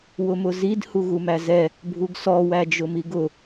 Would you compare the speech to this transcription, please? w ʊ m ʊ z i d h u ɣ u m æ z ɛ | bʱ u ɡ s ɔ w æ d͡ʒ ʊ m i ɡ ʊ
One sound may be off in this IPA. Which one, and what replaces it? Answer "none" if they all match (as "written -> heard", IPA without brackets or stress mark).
none